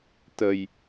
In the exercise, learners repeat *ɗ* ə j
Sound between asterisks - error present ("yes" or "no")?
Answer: yes